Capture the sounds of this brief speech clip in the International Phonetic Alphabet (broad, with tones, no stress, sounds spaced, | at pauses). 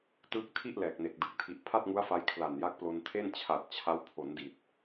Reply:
t ɯː˥˩ k̚ tʰ i˥˩ ʔ l ɛː˨˩ k̚ n e˨˩ k̚ d ɯ˨˩ k̚ tʰ i˨˩ ʔ pʰ a˥˩ t̚ ŋ u˦˥ a̯ f a˧ j kʰ l a˨˩ n j a˦˥ k̚ p l o˧ n tʰ e˥˩ n t͡ɕʰ a˨˩ t̚ t͡ɕʰ a˦˥ w pʰ o˩˦ n d i˨˩ t̚